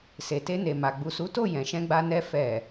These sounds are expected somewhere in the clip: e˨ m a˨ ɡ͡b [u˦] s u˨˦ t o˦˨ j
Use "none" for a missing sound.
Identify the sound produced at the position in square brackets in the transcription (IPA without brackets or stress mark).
u˨